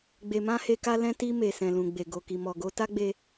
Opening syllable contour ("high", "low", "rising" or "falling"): low